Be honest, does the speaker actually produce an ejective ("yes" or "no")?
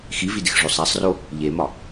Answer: no